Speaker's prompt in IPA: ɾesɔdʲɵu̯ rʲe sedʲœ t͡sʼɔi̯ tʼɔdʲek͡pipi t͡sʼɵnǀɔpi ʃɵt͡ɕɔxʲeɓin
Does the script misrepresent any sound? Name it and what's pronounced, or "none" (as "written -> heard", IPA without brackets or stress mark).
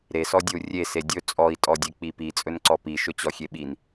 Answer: œ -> ɵ